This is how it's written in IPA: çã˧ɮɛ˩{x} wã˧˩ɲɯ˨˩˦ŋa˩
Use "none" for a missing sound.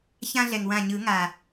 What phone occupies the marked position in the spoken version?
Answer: ŋ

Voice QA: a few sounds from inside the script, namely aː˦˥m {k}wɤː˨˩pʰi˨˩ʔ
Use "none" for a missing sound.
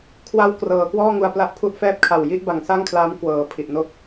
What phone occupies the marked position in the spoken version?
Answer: k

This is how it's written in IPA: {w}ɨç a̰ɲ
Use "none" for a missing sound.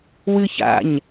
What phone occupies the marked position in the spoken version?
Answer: w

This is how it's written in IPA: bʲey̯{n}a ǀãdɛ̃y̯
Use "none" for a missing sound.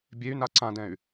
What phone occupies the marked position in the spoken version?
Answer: n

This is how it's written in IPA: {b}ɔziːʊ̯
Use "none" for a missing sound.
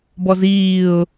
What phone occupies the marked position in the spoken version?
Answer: b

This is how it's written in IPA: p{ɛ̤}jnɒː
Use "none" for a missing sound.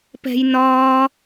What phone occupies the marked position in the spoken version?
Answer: ɛ̤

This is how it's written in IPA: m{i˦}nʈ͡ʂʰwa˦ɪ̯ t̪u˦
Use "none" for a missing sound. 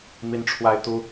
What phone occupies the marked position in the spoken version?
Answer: i˦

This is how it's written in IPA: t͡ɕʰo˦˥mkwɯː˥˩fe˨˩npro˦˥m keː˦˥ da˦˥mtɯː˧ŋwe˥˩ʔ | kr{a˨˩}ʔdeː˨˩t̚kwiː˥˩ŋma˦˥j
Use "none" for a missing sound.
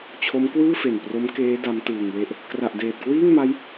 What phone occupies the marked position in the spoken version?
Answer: a˨˩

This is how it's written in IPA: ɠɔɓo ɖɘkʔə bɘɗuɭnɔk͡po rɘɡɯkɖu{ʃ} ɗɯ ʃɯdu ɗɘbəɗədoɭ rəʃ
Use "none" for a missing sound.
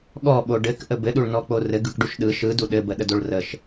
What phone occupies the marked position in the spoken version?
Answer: ʃ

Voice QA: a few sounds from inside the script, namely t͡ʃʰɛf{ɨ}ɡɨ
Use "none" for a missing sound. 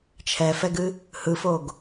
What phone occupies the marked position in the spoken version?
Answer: ɛ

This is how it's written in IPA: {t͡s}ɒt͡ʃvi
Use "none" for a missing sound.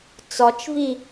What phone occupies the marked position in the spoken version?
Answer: t͡s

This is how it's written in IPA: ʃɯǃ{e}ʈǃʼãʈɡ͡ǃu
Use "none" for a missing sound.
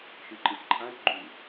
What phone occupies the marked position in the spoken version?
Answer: i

